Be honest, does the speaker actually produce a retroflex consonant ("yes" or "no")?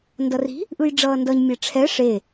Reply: yes